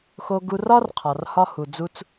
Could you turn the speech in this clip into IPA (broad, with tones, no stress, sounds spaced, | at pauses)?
x o˧ ɡ u˧ r ɒ˥ r qʰ ɒ˩ r h ɒ˧ h u˩ d͡z u˧ t͡s